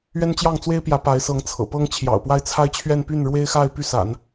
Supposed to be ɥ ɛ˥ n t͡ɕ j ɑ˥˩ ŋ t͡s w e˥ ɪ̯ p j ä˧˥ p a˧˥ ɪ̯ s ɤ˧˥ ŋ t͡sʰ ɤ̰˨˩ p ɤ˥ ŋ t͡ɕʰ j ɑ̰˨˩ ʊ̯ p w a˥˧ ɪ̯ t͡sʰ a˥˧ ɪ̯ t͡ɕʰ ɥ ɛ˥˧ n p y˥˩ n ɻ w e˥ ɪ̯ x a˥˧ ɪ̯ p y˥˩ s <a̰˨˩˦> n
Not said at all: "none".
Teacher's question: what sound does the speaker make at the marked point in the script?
a̰˨˩˦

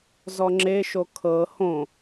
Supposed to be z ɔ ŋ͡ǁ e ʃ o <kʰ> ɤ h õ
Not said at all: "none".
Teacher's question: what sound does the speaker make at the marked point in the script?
kʰ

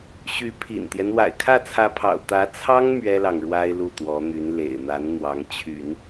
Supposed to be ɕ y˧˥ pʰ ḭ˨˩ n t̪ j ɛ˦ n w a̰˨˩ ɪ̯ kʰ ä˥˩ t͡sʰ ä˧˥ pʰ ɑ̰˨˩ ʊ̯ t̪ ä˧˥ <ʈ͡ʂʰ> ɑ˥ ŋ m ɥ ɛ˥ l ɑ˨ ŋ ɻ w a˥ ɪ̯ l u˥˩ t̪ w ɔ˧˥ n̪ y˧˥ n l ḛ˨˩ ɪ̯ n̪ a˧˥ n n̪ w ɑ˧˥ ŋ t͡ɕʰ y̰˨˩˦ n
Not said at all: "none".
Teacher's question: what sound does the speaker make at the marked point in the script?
t͡sʰ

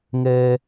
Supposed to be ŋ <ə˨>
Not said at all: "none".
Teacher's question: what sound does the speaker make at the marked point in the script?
ɛ˨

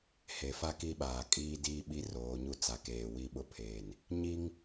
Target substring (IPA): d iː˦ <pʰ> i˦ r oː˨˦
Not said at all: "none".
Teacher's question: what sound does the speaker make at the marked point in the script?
ɓ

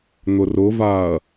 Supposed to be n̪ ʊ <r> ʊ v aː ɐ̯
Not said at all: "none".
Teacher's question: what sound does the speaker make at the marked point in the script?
r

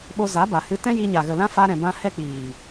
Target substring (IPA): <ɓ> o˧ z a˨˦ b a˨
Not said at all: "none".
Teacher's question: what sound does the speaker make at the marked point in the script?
ɓ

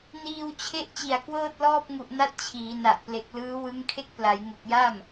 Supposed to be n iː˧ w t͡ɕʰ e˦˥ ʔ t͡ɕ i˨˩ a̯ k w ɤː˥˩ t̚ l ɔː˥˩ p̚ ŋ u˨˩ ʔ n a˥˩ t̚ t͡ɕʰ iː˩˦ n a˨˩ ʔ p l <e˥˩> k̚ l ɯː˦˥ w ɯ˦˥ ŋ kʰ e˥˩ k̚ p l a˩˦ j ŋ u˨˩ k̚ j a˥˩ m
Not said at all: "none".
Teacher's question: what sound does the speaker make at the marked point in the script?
e˨˩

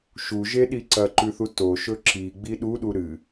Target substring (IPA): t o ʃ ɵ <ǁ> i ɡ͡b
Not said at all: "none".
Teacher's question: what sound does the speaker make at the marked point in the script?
ǁ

